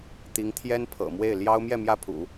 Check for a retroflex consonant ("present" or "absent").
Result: absent